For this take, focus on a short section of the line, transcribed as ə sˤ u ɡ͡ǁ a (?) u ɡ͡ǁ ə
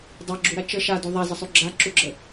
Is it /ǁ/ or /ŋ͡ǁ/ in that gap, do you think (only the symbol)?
ǁ